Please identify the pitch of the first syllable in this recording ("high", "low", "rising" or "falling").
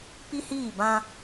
high